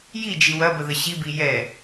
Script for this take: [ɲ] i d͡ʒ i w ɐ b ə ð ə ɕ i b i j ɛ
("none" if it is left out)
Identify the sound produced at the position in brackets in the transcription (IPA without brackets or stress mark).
j